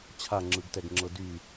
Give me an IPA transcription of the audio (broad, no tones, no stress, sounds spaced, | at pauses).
t͡ɕʰ a ŋ͡ǁ ɯ ɡ t ɛ ɡ ŋ͡ǁ ɤ d y